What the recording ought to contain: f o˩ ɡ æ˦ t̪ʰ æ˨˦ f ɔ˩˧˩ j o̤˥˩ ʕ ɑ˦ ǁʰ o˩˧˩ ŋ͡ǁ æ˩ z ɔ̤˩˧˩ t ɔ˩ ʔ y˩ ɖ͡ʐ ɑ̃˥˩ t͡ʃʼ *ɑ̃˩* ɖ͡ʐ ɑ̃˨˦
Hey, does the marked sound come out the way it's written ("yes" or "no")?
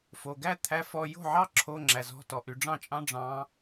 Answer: no